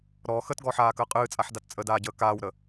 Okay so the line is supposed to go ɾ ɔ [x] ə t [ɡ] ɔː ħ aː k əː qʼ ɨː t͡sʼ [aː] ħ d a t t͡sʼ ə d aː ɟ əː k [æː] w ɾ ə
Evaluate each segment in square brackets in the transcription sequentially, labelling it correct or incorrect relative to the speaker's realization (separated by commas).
correct, correct, incorrect, incorrect